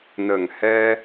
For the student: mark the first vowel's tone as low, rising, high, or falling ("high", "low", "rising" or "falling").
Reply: low